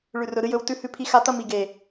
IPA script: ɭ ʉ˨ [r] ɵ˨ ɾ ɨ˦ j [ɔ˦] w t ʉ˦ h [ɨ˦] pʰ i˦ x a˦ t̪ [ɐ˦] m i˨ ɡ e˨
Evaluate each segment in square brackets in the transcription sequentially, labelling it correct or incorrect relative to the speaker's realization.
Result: correct, incorrect, incorrect, correct

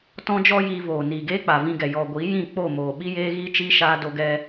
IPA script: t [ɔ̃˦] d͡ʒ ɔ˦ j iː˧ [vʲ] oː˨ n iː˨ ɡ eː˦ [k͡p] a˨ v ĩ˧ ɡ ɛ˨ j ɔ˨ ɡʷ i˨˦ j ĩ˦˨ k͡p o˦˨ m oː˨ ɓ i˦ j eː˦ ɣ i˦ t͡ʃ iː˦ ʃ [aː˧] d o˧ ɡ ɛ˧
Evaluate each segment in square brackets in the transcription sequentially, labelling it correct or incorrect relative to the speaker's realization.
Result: correct, incorrect, correct, correct

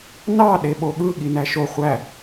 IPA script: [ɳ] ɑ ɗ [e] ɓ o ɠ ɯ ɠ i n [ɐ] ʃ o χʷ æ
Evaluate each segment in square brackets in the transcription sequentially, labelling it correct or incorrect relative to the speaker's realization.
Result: incorrect, correct, incorrect

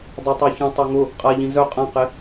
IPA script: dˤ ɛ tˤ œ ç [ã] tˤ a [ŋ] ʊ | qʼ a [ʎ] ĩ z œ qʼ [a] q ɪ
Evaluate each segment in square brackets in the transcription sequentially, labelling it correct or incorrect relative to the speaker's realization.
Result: incorrect, correct, correct, incorrect

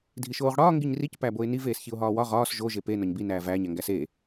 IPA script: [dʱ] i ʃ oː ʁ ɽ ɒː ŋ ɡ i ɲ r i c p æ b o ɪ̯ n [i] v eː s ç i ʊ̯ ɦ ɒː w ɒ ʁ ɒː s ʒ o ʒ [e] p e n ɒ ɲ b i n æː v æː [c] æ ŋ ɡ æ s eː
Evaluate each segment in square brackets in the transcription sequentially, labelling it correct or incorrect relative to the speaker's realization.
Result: correct, correct, correct, incorrect

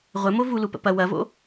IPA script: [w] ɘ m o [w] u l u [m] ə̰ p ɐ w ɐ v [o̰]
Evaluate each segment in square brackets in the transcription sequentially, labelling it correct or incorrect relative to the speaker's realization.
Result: incorrect, incorrect, incorrect, correct

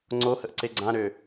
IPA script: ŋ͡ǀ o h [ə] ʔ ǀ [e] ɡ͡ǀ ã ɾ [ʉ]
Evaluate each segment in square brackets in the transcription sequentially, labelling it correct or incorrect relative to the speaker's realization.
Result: correct, correct, incorrect

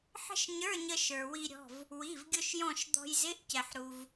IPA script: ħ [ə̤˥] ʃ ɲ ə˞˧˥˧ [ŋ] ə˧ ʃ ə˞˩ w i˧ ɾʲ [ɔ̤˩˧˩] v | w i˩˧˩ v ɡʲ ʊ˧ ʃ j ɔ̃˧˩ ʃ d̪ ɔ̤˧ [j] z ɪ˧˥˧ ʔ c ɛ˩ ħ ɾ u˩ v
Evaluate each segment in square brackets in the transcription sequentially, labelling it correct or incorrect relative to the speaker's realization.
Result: correct, incorrect, correct, correct

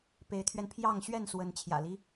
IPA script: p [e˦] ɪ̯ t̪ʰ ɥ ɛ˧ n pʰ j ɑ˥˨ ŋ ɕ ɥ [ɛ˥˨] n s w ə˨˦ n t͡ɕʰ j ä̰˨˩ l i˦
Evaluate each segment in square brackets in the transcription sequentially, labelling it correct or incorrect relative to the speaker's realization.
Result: incorrect, correct

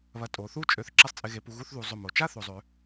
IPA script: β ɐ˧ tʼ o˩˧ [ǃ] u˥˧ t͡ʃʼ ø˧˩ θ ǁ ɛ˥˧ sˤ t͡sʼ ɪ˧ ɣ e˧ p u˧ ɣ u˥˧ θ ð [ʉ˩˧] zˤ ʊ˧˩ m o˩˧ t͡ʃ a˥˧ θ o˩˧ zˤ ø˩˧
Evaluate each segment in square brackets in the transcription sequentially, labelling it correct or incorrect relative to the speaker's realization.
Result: incorrect, incorrect

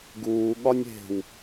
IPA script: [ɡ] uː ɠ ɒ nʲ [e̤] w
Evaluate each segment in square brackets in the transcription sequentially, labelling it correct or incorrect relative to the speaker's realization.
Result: correct, correct

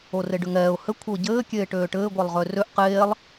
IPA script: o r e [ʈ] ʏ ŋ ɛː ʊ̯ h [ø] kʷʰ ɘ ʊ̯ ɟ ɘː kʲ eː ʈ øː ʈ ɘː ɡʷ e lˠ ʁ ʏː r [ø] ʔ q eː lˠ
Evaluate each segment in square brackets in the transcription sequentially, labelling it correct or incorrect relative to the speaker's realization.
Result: incorrect, incorrect, correct

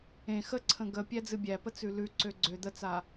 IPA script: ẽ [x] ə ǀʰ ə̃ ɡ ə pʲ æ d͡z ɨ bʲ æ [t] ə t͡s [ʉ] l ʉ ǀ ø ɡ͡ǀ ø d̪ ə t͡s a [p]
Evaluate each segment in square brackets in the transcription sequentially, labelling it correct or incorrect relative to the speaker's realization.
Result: correct, incorrect, correct, incorrect

